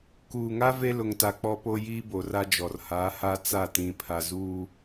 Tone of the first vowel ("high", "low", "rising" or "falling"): low